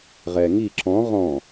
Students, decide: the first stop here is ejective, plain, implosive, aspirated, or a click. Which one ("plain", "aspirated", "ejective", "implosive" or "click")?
click